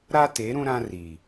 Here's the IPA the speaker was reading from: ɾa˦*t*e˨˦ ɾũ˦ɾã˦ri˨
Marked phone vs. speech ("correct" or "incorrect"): correct